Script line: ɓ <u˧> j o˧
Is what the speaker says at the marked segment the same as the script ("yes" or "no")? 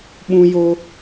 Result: no